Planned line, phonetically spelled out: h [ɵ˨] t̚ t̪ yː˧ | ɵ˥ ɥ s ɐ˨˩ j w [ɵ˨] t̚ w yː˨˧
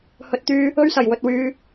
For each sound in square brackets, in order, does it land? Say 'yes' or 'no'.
yes, yes

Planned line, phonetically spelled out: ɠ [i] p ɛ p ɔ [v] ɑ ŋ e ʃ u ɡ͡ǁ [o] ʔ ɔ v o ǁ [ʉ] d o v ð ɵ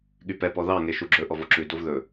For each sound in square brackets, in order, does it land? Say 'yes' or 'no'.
no, no, no, yes

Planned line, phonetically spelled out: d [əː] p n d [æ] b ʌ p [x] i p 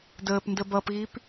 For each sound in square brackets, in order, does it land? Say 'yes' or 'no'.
yes, no, no

